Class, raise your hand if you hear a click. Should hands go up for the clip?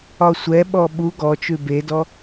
no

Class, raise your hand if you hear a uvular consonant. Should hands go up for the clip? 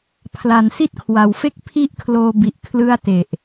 no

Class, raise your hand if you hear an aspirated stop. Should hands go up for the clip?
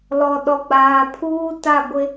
yes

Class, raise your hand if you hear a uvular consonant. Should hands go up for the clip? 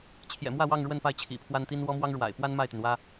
no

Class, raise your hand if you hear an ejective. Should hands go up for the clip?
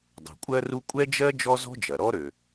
yes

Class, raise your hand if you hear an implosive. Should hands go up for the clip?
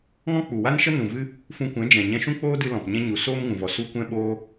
yes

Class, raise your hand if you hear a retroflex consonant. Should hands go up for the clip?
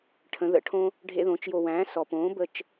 yes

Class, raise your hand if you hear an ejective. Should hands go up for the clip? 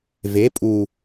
yes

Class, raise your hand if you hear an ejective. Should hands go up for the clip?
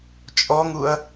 yes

